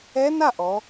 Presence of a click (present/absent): absent